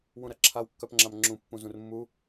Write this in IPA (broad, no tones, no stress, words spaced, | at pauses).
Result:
wũɾɐǁʰaw kːœpŋ͡ǁamŋ͡ǁũ pːũzũrmːu